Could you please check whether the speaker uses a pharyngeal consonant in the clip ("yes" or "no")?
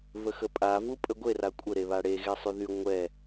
no